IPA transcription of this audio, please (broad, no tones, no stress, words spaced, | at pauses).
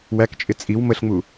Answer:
wækt͡ʃʼɪ t͡sʼiw məɬŋ͡mu